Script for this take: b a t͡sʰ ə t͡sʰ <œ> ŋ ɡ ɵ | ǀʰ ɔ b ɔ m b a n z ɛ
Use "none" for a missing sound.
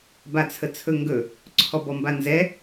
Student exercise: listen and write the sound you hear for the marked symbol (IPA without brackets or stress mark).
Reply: ɵ